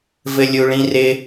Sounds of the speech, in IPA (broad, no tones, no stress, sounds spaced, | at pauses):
v ɘ lʲ u ɭ ĩ r ɪ